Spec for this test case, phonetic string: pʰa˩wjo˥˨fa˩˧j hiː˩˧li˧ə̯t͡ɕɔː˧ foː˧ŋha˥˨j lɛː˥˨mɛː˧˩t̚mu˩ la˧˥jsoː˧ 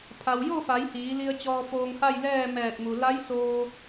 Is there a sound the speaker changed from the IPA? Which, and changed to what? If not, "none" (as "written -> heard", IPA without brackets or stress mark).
none